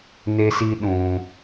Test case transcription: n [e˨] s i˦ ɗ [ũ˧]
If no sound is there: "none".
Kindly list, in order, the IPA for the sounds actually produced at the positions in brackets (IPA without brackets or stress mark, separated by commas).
e˦, ũ˧